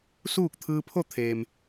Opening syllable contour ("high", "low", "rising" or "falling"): falling